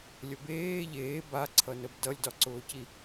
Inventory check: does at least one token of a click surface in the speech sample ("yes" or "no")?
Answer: yes